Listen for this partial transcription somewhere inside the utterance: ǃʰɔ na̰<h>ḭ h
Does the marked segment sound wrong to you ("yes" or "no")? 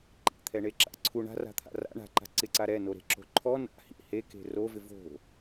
no